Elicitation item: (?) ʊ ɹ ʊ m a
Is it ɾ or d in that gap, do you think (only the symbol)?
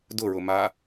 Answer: d